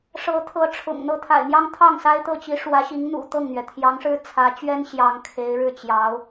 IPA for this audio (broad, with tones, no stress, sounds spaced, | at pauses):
ʂ ɤ˧˥ t̪ʰ ɤ˧˥ ʈ͡ʂʰ ʊ̰˨˩ ŋ n̪ ɤ˥˩ t̪ʰ a̰˨˩ ɪ̯ n̪ j ɑ˥ ŋ t̪ʰ ɑ˥˩ ŋ s a˥ ɪ̯ t̪ ɤ˥˩ t͡ɕ i˧˥ ʂ w ä˧˥ ɕ i˧˥ ŋ n̪ ṵ˨˩ t̪ ɤ˥˩ ŋ n̪ ɥ ɛ˩ t̪ʰ j ɑ˧˥ ŋ ʂ ɻ̩˥ t͡sʰ ä˧˥ t͡ɕ ɥ ɛ˥ n ɕ j ɑ˧˥ ŋ kʰ e˧˥ ɪ̯ ɻ ɻ̩˥˩ t͡ɕ j ɑ˧˥ ʊ̯